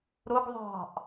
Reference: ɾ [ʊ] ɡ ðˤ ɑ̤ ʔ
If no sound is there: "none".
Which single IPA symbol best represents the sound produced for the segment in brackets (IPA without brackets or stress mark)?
ʊ